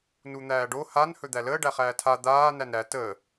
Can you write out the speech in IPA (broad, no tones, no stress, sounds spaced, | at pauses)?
n u n̪ æː ɖ o h a n h ɵ d̪ æ l əː ɖ æ χ æː tʰ a d̪ aː n æ n ɾ æ t əː